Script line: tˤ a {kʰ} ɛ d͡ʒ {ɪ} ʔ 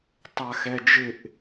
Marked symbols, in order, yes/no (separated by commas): no, yes